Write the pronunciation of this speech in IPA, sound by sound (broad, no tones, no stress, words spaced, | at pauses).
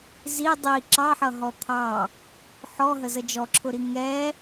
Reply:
zi dˤi ǁɑħʌ ɦɔt̪ʰɑ | ħɔɦə zəd͡ʒɔǁʰʊɾi ŋɛ